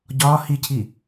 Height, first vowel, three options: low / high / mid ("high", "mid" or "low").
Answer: low